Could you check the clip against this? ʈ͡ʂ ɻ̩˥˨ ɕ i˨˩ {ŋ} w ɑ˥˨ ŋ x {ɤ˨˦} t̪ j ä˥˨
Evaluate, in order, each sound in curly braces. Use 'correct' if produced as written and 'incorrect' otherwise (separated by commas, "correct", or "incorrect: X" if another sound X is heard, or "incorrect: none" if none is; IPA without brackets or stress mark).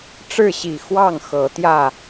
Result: incorrect: x, correct